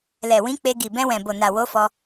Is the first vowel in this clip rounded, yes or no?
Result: no